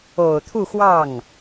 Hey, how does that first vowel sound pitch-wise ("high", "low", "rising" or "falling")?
low